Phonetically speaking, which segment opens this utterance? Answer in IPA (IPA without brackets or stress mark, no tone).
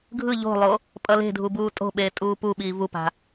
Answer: ɡʱ